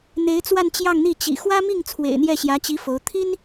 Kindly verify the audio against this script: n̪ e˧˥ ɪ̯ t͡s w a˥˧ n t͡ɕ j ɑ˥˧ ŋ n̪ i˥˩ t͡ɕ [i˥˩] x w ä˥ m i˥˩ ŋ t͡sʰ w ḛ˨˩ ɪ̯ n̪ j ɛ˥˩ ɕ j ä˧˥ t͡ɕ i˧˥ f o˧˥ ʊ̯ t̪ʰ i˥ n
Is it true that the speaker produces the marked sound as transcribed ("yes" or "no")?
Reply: no